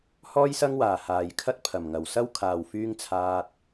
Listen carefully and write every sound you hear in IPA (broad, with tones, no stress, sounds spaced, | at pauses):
h ɔː˥ j s ɐ˥ ŋ w aː˨˩ h aː˨˩ j kʰ ɐ˥ t̚ pʰ ɐ˨˩ m ŋ ɐ˨˩ w s ɐ˥ w kʰ aː˨ w f yː˥ ŋ t͡sʰ aː˧ t̚